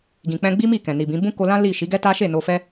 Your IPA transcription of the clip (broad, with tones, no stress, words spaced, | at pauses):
ɡĩ˨k͡pɛ̃˧ɡ͡bi˦mi˦˨ kɛ̃˨ni˨bĩ˨˦ bũ˦ko˧lã˦ li˦˨ ʃi˨˦ɡɛ˦ ta˦ ʃe˦˨no˧fɛ˦